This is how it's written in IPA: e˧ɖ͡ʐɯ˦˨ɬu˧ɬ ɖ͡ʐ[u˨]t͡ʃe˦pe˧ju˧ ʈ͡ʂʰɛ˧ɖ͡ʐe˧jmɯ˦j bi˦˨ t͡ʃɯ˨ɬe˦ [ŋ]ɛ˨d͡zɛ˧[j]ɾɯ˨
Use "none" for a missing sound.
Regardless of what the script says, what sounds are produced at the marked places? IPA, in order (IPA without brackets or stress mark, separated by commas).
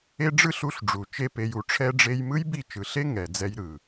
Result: u˨, ŋ, j